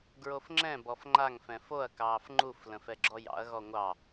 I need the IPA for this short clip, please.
ɡ ɹ o f ŋ͡ǁ ɛ̃ b ɔ f ŋ͡ǃ a ŋ f ɛ̃ f o ɐ̯ k ɑː f ŋ͡ǃ u f l ə̃ f ɛ ɡ͡ǁ ɔ j ɑ̰ ɐ̯ ɣ ɔ ŋʷ ɑ

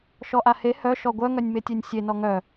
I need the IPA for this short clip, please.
ʃ ɔ ʔ a h e h œ ʃ ɔ ɡʷ œ ŋ œ nʲ m e tʲ e nʲ sʲ e n ɔ ŋ œ

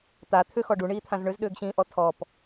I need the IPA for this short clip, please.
t̪ a t̪ʰ ʏ x ɔ ɖ u ɳ iː t̪ʰ ã z ɳ ʏ z ɗ ʏː ɡ ɕ ĩː ʔ ɔ tʰ ɔ p

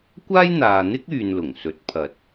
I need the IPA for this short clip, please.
kʷ aː˥ j n̪ aː˨ n̪ ɪ˥ k̚ yː˨ n l ʊ˨˩ ŋ s ɵ˨˥ t̚ pʰ ɐ˨ t̚

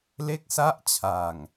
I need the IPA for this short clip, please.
l e˥˩ k̚ s a˥˩ ʔ t͡ɕʰ a˨˩ ŋ

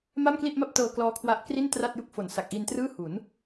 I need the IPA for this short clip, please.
m a˥˩ m k l i˥˩ ʔ m a˥˩ p̚ t ɤː˧ k l ɔː˦˥ kʰ w a˦˥ ʔ k r i˥˩ n t r a˥˩ t̚ j u˥˩ k̚ f o˨˩ n s a˨˩ k̚ ʔ i˧ n t r ɯː˥˩ h u˩˦ n

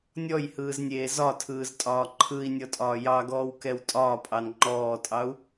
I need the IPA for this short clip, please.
nʲ ɔ j h ɯː z nʲ eː z ɒ tʰ ɯː z tʼ ɒː ǃʰ ɯ i̯ nʲ ɔ tʼ ɒː j ɑ ɡ ɔː w k ɛ w tʼ ɒː pʼ ɑ n ŋ͡ǃ ɔː tʼ ɑ u̯

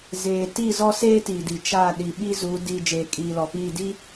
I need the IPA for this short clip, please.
z eː˨ t i˦˨ z ɔ˦ s eː˦ t i˨ d i˨ t͡ʃ a˦˨ ɗ i˨ ɓ i˦ z u˨˦ d i˨ d͡ʒ eː˨ kʼ iː˨ l ɔ˨ p iː˦˨ d i˦

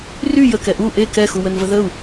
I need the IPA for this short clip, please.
r y j ə k ɛ ʔ u ʔ e k ɛ x u w ə n v ə ð ə u̯

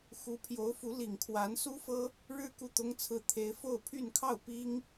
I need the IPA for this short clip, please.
x u˧˥ pʰ j o˧˥ ʊ̯ f u˧˥ l i˨˩ ŋ kʰ w a˧˥ n s u˥ f ɤ˥ | ɻ ɻ̩˥ k u˥˩ t̪ ʊ˥ ŋ t͡sʰ ɹ̩˥˩ t̪ʰ e˥ ɪ̯ f o˥˧ ʊ̯ pʰ y˥˧ n kʰ ɑ˥˩ ʊ̯ p i˥ ŋ

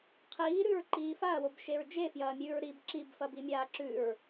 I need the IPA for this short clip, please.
qʰ iː ɾ ʉ ɹ ǃ iː f a ɐ̯ w o b ʃ e ɹ d͡ʒ e f j ɐː mʲ ʉː ɹ ɾ i b ǁ i b f ɐ b i mʲ aː ǁ ʉ ɹ

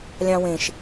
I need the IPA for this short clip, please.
lʲ ɑ̃ w ẽ ʃ

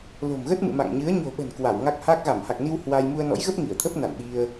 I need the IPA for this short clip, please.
l o̤˨˩ m ɣ ə˦˥ t̚ m ɨ̰˧˨ m a̰˧˨ ŋ ɲ ɨ˨˦ ə̯ ɲ o̤˨˩ ɓ ə̤˨˩ n k w a˧˩ w ŋ a˦˥ k̚ h a˦˥ k̚ ɣ a˧˩ m h a˨˩ k̚ n i˧ w h w a˧ j m u˧ ə̯ n ɔ̰˧˥ j ɣ ə˦˥ p̚ ŋ i˧˩ ə̯ t̪ʰ ə˦˥ p̚ n a̰˧˨ n ɓ i˧ ə̯

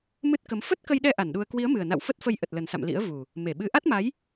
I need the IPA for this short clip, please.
m ɨ˦˥ t̚ k ə˨˦ m f ə˦˥ t̚ k ə˧ j ɗ ɛ˧ ʔ a˧˩ n ɗ u˧ ə̯ k w i˨˦ ə̯ m ɨ˨˩ ə̯ n a̰˧˨ w f ə˦˥ t̚ f ə˧ j ʔ ə˨˩ t̚ l ə˨˩ n s a̰˧˨ m l ḭ˧˥ ə̯ v u˨˩ | m e˧˩ ɓ ɨ˨˦ ʔ a˦˥ t̚ m a˨˦ j

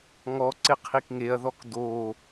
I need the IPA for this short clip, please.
ŋ ɔ ǀ ɪ qʰ i k ŋ e ɐ̯ ð ɔ k d o

